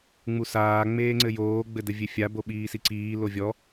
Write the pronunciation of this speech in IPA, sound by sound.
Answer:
ŋ͡m u s aː ŋ͡m eː ŋ͡ǀ ɘ j oː ɡ͡b ɘ d ɘ vʲ e fʲ a b o ɓ iː s i ǀ iː l o vʲ ɔ

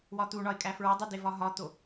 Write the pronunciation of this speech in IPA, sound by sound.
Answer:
w ɒ t̪ u ɳ ɒ ɪ̯ kʼ æ f ɹ ɒ dˤ u d e v ɒ ɦ ɒ t̪ o

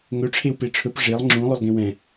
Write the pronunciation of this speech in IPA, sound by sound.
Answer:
ŋ ɵ ʈ͡ʂʰ e w p e ʈ͡ʂʰ ɵ p ʐ e lˠ ŋ͡ǁ ũ lˠ ø lˠ ɡ ẽ w ɛ̃

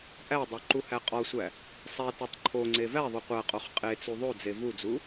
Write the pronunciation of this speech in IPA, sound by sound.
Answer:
ʔ æ dˤ o ǃ u h æ qʼ ɒ sʷ æ | sˤ æ t ɒ tˤ ǃʰ o ŋ͡ǀ e v æ ðˤ o qʷ æ qʼ o χ qʼ e t͡s u ðˤ o d͡z e v u d͡z u

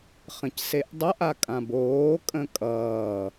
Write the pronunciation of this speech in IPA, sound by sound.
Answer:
χ ə̃ c s e ʔ dˤ ʌ ʔ a kʼ ã b oː kʼ ə̃ kʼ ʌː

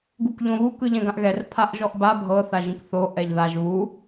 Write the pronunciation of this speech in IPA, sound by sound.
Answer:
ɡ u k ʎ õ β u k ɯ ʎ ɛ̃ ɡ ã ʔ ɣ ɛ r pʰ a ʔ ʒ ɔ ʔ b a bʱ ɤ θ a ʒ ĩ k θ o ʔ ɛ ʎ ð a ʒ β u

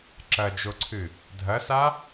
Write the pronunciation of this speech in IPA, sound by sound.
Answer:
ǁ ɐ d͡ʒ o ǀʰ ɨ | dʱ ɐ s a

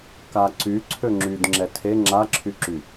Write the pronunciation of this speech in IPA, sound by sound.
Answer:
k a ǀ y ǀʰ ø ŋ͡ǁ y d ŋ͡ǁ ɛ tʰ e ŋ͡ǁ a ǁʰ y ǁ y

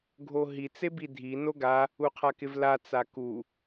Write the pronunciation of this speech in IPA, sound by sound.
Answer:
ɡʱ o ɦ i t͡s e b i dʱ i n o ɡ a | u qʰ a k ɪ v l a t͡s a k u

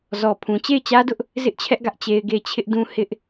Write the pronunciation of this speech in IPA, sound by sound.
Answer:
z ɔ˨ pʰ ũ˨ t͡ɕ e˦˨ ɪ̯ t͡ɕ ä˦ d ʊ˦ ʔ | z ɪ˦ ʔ t͡ɕʰ ɛ˦ ʔ ɡ ä˦ ʔ t͡ɕ e˦ ɪ̯ ɡ e˦˨ ɪ̯ t͡ɕʰ ɪ˦ ʔ d ũ˦ h ɪ˦ ʔ

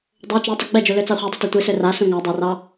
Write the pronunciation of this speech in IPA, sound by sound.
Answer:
dˤ o t͡ʃ ø tˤ ɑ ɡ͡b ɛ d͡ʒ u l ø t͡s ɑ χʷ ɛ dˤ i t o tʷ i s ø r a s ũ ŋ a dˤ o r ɑ

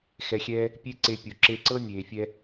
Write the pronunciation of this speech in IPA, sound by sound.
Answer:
x ɛ˧ xʲ ɛː˦ | pʲ e˦ ǀ e˧ pʲ u˨ ǁ e˧ ǀ ɤ˦ nʲ eː˨ fʲ ɛ˧

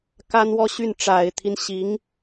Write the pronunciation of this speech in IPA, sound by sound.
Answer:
k a˥ n w ɔ˥ ɕ y˥˩ n ʈ͡ʂ a˨˩ ɪ̯ t̪ʰ i˦ n ɕ i˧˥ ŋ

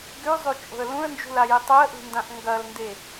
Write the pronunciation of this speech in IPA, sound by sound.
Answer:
ɡ ʉ zˤ ʉ t͡ʃʼ o̤ ə̯ l ũ ə̯ n d͡ʒ ṳ l a j i tˤ ɵ ə̯ ʔ ṳ n d ã ʔ ŋ ɡ ɐ l n d e

